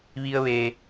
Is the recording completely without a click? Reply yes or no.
yes